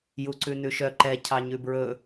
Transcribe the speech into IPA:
juǀʉnʉʃœ ǃɛ cʰɑɲʉbɹɵ

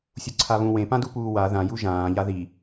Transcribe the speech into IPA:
sʲuǀʰaβũ wẽpãdupuː wa ðãju ʒãːʎa ði

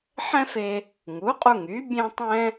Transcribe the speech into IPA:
ħɛ̃˥fe˧ | ŋu˩˥qʼu˧ŋy˩˥ bʲẽ˥tˤɛ̃˥

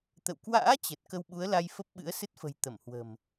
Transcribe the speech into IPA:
t̪ə̰˧˨w kwa̰ː˧˥ t͡ɕə˨˩t̚ kə˧wɓu˨˦ə̯la˧j fə˦˥p̚ɓɨ̰˧˥ə̯sɨ˦˥t̚fə̤˨˩j t̪ə˧˩mhwə̤˨˩m

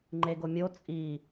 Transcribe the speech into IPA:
ŋ͡ǃeɡomʲo t͡sʼi

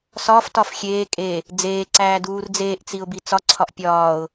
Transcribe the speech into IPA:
sɒːftɒf xʲeː kʼe | d͡zeːǀæː duːrd͡zeːʔt͡siʊ̯ bit͡sɒǀʰɒʔ pʲɒːʊ̯

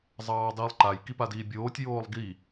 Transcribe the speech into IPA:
zˤɑːdˤiːlˠǃaj kipadiːbʲoːtʲ joːlˠɡi

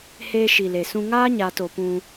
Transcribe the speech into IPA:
heː˧ʃi˨le˨sũ˧ ŋaː˦ɲaː˨to˨ pũ˧

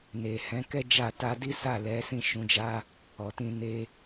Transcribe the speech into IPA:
ne˨ hɛ̃˨˦kɛ˦d͡ʒa˦˨ ta˧di˦ sa˦˨lɛ˨˦sĩ˦˨ ʃũ˨˦d͡ʒa˦ | ɔ˨tĩ˧ ne˦

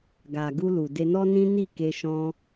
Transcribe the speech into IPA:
ɡa˨ ɡu˧lu˨ de˧nɔ˦nĩ˦ ni˦˨ke˧ʃɔ̃˧

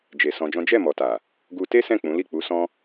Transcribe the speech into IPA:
d͡ʒe˨ sɔ̃˧d͡ʒɔ̃˦ d͡ʒɛ˦˨mɔ˨ta˨ | ɡu˧ te˦sɛ̃˦˨ k͡pũ˨˦li˦˨ k͡pu˨˦sɔ̃˦

